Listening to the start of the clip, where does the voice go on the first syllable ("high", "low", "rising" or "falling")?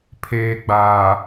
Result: low